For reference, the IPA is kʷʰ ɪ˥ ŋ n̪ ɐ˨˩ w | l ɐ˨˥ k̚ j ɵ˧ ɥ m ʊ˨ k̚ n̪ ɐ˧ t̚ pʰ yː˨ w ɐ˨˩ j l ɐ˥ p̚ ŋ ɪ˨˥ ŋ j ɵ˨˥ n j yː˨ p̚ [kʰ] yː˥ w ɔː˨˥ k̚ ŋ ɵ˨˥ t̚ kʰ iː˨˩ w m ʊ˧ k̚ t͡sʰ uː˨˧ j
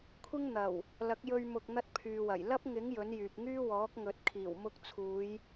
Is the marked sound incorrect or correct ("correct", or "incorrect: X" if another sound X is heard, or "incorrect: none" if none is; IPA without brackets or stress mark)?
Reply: incorrect: ŋ